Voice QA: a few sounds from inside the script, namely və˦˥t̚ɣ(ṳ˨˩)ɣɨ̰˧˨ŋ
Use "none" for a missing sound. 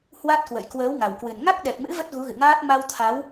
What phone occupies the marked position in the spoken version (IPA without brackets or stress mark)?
u˨˦